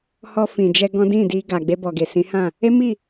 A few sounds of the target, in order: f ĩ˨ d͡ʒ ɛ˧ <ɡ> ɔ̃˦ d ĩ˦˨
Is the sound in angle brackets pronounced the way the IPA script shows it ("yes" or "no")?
yes